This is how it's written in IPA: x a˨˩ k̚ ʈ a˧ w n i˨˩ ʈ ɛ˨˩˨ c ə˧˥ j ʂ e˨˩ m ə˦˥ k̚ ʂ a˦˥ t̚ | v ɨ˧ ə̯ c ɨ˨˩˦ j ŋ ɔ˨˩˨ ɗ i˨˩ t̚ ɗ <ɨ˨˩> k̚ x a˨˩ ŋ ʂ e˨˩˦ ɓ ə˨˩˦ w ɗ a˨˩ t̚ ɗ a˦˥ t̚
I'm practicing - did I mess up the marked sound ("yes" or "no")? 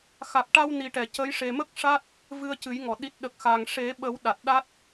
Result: yes